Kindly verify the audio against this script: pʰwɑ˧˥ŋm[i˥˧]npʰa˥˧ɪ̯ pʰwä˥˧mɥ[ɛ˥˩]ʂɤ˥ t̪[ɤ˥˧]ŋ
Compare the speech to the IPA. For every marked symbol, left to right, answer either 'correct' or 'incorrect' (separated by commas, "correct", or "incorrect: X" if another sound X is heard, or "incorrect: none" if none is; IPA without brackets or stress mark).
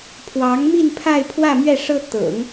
correct, correct, incorrect: ɤ̰˨˩˦